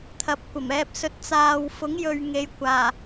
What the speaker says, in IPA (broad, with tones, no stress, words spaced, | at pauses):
t̪ʰɐ˨p̚kʷɐ˨˩mɛː˧p̚sɵ˧t̚ t͡saː˨wfʊ˨˥ŋjɵ˨ɥ ŋe˨jkʷaː˨˩